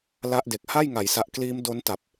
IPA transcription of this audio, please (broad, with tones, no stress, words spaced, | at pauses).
la˦˥ʔde˨˩k̚ ha˥˩jŋa˩˦jsa˨˩ʔkliː˦˥m do˦˥nta˨˩p̚